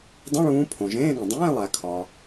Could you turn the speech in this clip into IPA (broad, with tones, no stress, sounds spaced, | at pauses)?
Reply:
dˤ ĩ˧˥˧ ɭ ũː˨˦ pʰ õ˩ ʒ ẽː˧˥˧ ɠ õ˩ dˤ ẽː˧˥˧ lˠ æ˩ kʰ ɒ˩